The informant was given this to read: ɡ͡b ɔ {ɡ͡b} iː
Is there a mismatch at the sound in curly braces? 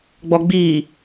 no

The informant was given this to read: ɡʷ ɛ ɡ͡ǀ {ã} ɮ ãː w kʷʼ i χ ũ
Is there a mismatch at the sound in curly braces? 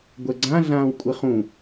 no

